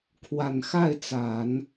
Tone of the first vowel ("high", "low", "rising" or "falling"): low